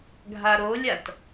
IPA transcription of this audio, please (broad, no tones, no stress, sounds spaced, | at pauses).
ɡʱ a ɾ o lʲ a t